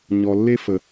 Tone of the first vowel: low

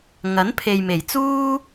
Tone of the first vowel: rising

